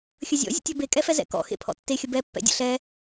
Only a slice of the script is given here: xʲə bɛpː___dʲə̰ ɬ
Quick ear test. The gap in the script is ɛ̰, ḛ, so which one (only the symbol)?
ɛ̰